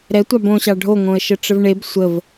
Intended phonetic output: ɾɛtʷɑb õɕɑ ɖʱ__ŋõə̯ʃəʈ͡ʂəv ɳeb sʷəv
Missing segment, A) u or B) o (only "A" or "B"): B